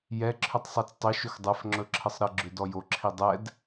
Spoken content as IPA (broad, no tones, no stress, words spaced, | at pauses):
jɛ ǁʰʏtˤsˤɤt͡stˤɵ ʃɵxdˤɛf ŋ͡ǁɵǁʰəsˤɾə ɡ͡ǁʏdɔjo ǁʰidˤɛd